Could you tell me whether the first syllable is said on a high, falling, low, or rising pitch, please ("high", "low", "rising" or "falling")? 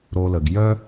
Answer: low